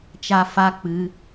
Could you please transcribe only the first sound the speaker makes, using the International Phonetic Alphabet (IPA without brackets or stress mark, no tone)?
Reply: t͡ʃ